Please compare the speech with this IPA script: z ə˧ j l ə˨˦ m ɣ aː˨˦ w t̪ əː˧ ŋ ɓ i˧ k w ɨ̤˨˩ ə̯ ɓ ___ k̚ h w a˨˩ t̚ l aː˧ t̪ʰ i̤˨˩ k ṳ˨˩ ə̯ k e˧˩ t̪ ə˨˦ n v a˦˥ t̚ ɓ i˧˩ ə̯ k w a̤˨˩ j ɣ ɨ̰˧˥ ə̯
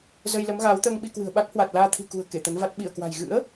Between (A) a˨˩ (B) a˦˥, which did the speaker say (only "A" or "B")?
B